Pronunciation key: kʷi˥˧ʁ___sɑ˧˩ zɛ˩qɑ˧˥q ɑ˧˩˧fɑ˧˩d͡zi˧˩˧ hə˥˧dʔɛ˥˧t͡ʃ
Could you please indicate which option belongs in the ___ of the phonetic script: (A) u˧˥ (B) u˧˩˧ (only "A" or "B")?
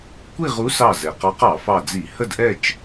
A